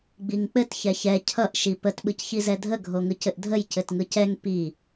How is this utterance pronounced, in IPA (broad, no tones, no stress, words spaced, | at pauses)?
ɡ͡biŋk͡pɘt çɛçɛ cʰʌʔ ʃipət ɓɯcçizɛdʱə ɡʱoŋɯcɘʔdʱəj cɘtŋɯcɛŋ pi